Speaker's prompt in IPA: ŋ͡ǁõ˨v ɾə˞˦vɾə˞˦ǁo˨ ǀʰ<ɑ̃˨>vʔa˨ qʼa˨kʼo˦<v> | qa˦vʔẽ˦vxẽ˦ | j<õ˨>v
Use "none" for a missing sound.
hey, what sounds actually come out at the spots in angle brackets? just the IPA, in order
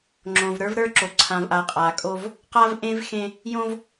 ã˨, v, õ˦

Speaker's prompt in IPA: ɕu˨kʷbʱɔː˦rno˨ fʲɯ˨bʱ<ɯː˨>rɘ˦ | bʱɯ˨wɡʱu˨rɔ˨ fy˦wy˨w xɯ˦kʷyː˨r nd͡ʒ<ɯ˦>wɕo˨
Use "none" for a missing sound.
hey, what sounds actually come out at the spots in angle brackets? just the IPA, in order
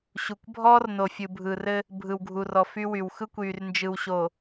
ɯː˨, ɯ˨

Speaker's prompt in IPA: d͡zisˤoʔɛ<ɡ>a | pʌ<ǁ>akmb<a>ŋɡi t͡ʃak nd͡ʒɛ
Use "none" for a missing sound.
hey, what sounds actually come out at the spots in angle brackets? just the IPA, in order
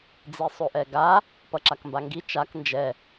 ɡ, ǁ, a

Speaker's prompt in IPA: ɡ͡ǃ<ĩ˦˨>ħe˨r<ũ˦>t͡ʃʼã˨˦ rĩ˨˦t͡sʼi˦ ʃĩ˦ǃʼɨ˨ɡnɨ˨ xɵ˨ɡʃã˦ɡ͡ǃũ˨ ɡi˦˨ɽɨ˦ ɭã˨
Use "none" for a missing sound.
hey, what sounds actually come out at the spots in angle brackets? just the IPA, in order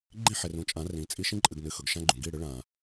ĩ˦˨, ũ˨

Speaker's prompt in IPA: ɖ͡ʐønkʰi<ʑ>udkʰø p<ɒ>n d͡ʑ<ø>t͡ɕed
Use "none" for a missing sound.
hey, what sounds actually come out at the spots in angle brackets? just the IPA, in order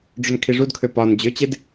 ʐ, ɒ, ø

